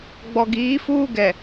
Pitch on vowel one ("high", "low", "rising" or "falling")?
low